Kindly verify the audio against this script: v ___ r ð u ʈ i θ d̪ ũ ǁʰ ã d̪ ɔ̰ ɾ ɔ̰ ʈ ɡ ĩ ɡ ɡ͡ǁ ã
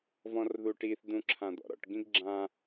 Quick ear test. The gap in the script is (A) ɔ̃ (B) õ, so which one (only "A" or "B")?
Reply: A